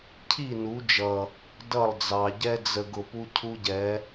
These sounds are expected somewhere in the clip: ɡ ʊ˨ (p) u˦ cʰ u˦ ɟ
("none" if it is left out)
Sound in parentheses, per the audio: p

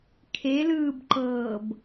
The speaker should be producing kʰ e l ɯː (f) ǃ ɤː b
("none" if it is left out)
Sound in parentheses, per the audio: b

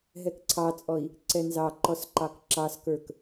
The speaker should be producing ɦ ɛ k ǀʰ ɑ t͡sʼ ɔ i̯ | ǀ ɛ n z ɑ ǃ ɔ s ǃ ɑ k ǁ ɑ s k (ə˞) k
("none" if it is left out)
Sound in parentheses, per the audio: ə˞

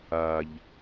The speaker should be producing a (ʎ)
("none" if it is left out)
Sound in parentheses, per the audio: ʎ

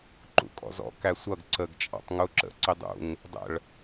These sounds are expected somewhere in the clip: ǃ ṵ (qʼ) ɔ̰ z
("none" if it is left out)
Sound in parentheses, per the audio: kʼ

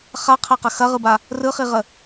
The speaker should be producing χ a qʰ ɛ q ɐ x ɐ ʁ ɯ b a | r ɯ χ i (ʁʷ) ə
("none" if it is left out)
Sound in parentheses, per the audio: ʁ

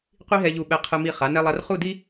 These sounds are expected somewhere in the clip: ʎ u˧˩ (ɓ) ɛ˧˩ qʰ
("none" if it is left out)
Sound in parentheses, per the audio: ɓ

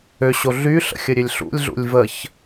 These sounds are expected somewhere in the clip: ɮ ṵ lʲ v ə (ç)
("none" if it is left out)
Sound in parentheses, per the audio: ç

